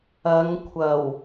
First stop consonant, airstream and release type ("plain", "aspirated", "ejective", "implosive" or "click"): aspirated